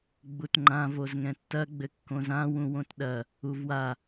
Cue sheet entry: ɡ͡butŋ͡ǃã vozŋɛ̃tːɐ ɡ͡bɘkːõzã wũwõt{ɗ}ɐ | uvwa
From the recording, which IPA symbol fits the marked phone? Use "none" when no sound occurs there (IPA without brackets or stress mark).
ɗ